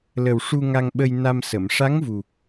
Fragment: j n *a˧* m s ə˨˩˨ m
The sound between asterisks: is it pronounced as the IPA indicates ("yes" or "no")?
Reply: yes